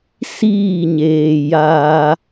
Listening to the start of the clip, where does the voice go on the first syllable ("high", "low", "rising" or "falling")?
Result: falling